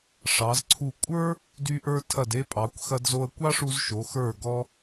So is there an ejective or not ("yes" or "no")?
yes